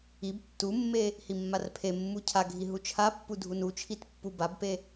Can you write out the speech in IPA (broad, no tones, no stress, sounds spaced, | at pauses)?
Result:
i b tː u mː e | h i mː a r pʰ e mː u cʰ a ɡʱ i ɦ u t͡ʃʰ a pː u dʱ u n u t͡ʃʰ i t pː u b a b p e